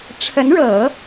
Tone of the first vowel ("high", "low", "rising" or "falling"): rising